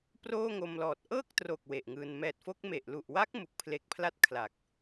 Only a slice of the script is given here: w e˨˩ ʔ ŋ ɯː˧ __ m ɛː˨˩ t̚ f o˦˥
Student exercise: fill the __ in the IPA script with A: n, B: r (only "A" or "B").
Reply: A